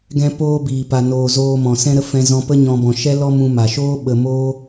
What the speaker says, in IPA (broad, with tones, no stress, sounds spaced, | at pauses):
ɡ ɛ̃˧ p oː˧ b iː˨ p a˨ n oː˨ z oː˧ m ɔ̃˨ s ɛ̃˧ ɾ ə˧ f ɛ̃˧ z ɔ̃˧ p ə˦ ɲ ɔ̃˧ b ɔ̃˨ ʃ ɛ˦ l ɔ˦ m ũ˧ m a˨ ʃ oː˦ ɓ ə˧ m oː˦